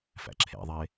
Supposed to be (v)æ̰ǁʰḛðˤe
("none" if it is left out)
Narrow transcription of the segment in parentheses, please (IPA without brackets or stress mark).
f